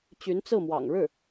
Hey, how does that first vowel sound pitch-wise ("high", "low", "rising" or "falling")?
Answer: rising